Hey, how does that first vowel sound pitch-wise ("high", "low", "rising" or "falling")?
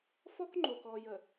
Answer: high